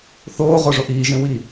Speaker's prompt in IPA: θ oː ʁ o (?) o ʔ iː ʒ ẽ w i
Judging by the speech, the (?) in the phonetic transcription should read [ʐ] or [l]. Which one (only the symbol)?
ʐ